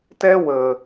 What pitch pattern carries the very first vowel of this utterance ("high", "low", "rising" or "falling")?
high